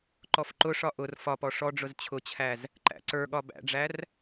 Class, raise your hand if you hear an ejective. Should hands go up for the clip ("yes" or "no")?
no